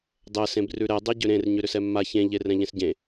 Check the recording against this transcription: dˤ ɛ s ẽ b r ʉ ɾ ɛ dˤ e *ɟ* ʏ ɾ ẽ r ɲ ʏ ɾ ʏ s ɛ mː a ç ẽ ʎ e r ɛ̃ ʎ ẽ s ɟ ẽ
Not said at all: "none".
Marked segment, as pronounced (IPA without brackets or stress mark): ɟ